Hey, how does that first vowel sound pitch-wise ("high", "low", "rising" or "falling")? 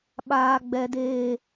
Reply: high